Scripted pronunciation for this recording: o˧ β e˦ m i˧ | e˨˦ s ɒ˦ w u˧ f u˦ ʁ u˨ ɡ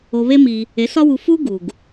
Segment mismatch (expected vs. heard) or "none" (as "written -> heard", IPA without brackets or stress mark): ʁ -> ɡ